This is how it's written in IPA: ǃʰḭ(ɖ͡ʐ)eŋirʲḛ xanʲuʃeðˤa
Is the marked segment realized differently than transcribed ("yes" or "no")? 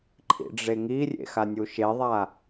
no